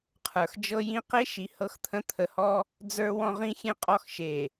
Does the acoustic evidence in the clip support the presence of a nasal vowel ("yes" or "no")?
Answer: yes